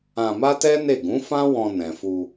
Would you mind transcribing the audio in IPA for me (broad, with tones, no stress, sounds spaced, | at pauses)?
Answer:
ã˧ m a˦ t ɛ˦ n e˦˨ ɡ ũ˨˦ f ã˦ w ɔ̃˧ n ɛ̃˨ f u˧